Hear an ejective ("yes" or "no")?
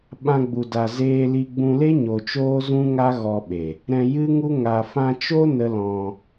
no